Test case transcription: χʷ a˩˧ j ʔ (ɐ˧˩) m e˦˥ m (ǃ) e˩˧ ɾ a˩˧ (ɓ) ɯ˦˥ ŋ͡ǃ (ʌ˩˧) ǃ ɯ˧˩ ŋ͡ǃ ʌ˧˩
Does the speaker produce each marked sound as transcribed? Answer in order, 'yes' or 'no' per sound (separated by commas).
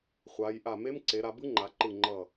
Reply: no, no, no, no